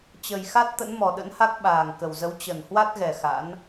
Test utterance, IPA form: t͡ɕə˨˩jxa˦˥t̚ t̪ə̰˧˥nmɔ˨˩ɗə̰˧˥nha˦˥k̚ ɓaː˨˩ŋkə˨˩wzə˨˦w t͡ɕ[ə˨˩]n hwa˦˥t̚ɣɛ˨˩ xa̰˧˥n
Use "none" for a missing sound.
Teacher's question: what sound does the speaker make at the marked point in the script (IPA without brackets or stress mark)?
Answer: ə˨˩